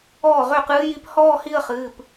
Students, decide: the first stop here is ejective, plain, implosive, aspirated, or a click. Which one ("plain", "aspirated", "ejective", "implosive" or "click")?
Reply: plain